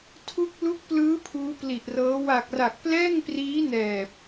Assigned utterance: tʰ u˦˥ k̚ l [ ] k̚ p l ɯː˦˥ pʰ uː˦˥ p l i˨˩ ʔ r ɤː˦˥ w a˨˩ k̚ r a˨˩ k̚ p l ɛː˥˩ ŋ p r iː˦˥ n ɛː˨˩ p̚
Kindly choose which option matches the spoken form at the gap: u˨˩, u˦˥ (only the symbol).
u˦˥